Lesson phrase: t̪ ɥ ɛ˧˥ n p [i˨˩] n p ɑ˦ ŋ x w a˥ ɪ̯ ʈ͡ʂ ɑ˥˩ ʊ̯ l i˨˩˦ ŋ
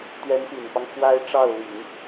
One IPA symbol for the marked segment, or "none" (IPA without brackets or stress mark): i˨˩